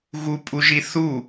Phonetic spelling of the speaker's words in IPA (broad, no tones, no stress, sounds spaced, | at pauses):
ɣ u pʼ u ʒ i θ u